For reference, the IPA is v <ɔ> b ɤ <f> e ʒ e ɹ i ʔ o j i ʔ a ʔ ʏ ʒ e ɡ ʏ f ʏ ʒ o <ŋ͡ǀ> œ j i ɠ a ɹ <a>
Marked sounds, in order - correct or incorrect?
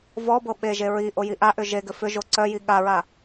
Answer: correct, incorrect, incorrect, correct

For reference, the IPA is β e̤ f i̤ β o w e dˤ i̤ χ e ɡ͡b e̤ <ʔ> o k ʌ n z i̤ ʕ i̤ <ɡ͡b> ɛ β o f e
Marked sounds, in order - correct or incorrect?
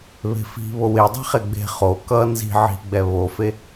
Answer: incorrect, correct

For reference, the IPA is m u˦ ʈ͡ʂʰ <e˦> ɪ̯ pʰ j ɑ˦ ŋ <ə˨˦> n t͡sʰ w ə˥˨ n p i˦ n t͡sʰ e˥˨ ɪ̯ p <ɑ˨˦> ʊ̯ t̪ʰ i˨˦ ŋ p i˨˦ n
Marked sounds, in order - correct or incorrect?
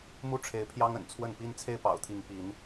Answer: incorrect, incorrect, incorrect

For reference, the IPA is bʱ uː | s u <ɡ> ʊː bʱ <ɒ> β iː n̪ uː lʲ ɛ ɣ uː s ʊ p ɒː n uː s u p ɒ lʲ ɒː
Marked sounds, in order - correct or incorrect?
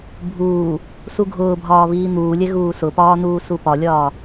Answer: incorrect, incorrect

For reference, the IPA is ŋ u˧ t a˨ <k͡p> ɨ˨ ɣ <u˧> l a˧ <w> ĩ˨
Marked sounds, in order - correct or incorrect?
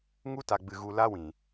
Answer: incorrect, incorrect, correct

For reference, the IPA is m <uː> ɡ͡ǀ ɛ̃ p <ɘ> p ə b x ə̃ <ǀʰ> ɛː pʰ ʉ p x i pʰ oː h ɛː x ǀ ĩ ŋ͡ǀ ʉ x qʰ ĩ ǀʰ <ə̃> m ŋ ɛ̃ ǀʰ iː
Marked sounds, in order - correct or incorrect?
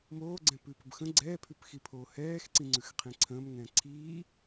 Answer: incorrect, incorrect, incorrect, incorrect

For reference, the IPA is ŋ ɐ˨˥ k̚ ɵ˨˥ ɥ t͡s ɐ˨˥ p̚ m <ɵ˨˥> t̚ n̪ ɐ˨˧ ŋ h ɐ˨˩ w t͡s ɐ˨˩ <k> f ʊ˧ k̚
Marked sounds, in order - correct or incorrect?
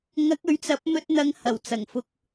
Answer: incorrect, incorrect

